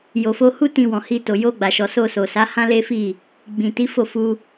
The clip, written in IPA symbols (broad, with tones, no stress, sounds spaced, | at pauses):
j o˨ f o˧ h u˦ t ĩ˧ w ɔ̃˨ h i˧ t o˨ j o˧ ɡ͡b a˨ ʃ ɔ˨ s o˧ s o˨ s a˨˦ h ã˦ l e˦ f i˦˨ | ɡ͡b ĩ˨ t i˨˦ f o˦˨ f u˧